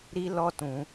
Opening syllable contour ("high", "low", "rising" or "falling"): high